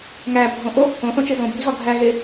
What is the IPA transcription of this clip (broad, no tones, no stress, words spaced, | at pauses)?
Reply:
ŋæbʱõ ʔo | õθõt͡ʃe zõbʱiɣɒ ɡʱæɣe